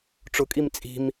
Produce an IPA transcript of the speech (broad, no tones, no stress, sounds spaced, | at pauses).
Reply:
ʈ͡ʂ ʊ kʼ i m t͡sʼ i̤ m